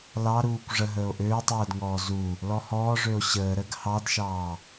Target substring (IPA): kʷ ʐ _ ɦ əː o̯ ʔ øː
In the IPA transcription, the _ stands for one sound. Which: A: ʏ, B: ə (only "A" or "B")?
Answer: B